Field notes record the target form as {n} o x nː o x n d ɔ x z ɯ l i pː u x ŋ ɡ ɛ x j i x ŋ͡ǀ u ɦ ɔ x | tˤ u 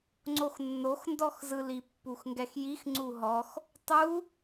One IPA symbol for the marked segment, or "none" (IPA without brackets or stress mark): ŋ͡ǀ